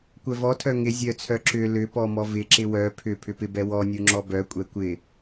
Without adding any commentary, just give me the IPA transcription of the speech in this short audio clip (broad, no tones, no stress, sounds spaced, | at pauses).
kʷ œ v ɔ tʰ œ ŋ ɪ zʲ œ t͡sʰ œ ǁ ʏ l ʏ p ɔ m ɔ v ɪ ǁ ɪ w œ pʰ ʏ pʰ ʏ p ɪ b ɛ w ɔ nʲ u ŋ͡ǁ ɔ b œ kʷʼ ɛ kʷ ɪ